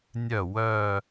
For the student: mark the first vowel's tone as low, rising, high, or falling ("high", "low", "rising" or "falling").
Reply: falling